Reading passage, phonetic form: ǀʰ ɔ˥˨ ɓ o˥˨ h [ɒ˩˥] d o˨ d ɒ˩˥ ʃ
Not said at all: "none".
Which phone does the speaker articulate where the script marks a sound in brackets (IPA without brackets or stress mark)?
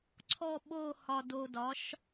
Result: ɒ˨